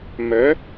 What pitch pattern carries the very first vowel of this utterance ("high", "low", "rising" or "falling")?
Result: rising